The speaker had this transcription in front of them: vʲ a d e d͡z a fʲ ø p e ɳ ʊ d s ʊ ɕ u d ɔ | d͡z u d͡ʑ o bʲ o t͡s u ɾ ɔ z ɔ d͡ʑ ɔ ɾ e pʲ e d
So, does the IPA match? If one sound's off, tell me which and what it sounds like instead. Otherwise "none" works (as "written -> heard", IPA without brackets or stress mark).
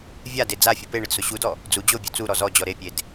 ø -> u